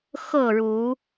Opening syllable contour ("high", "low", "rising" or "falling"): falling